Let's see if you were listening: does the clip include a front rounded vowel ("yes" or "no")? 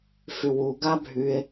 yes